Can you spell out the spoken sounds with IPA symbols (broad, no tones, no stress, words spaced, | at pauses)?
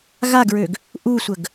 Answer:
ɣaɡɹøɡ | ʔusʷəɡ